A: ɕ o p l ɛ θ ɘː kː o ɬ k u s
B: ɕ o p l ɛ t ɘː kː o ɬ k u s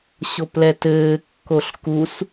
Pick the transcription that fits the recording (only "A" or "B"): B